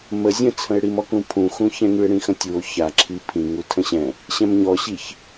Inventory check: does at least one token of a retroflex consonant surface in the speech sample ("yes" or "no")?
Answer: yes